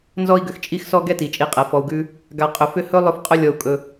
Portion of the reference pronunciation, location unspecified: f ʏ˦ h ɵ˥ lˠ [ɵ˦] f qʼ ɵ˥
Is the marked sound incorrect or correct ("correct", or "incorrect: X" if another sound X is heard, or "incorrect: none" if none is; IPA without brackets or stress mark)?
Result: correct